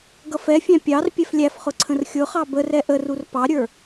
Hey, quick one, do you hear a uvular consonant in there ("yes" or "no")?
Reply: yes